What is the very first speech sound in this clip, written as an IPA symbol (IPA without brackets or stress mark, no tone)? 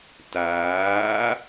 t